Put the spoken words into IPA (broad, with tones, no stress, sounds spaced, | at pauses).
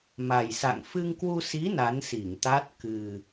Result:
m a˨˩ j s a̰˧˨ ŋ f ɨ˧ ŋ k w u˧ s i˨˦ n a˨˦ n s i˧˩ ŋ t̪ a˦˥ t̚ k ɨ˨˩